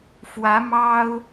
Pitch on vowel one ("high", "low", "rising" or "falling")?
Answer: rising